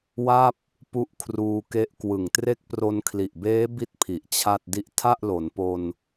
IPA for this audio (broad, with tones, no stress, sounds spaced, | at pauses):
w a˥˩ p̚ | p u˦˥ ʔ kʰ r uː˧ k e˦˥ ʔ k w ɯ˨˩ ŋ t r e˦˥ k̚ p r o˧ n kʰ l i˨˩ ʔ b eː˦˥ b i˥˩ t̚ pʰ i˨˩ ʔ t͡ɕʰ a˥˩ t̚ d i˦˥ ʔ tʰ a˥˩ ʔ l o˩˦ n p o˧ n